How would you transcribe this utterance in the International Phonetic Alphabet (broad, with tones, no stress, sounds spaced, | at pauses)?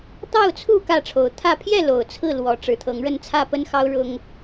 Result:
t̪ ɑ˥˨ ʊ̯ t͡sʰ u˥˨ k ä˥˨ ʈ͡ʂʰ o˨˦ ʊ̯ t̪ʰ ä˥˨ pʰ j ɛ˥˨ l o˨˩ ʊ̯ t͡sʰ ɹ̩˥˨ l w ɔ˨˦ ʈ͡ʂ ɻ̩˨˩ t̪ʰ ɤ˨˦ ŋ ɻ ə˥˨ n t͡sʰ ä˥˨ p ə˦ n x ɑ˦ ʊ̯ ɻ ʊ˦ ŋ